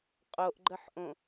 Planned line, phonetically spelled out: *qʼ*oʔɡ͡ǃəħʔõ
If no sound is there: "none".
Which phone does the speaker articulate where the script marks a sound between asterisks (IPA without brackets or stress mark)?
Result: qʼ